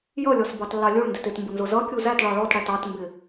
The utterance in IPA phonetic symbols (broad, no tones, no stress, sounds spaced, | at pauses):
j ʌ lʲ ɔ s b ɑ t lː ɑ lʲ u ɭ n d ɪ t ɪ t m b ʊ n z ʊ z ʌ kʲ u z æ t ɭ ɑ ɭ ɔ t ɽ æ t ɑ t m b ɪ